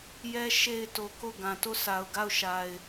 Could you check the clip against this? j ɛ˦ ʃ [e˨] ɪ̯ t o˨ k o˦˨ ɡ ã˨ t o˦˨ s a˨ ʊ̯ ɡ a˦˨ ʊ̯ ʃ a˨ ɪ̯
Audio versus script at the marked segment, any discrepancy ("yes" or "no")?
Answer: no